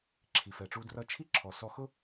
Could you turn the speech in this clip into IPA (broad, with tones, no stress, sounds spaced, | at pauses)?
ǁʰ i˩ f ɛ˩ ʈ͡ʂ u˧ d r ʌ˧ t͡ʃʰ i˥ ǁʰ ɔ˩ s ɔ˧ x ʊ˥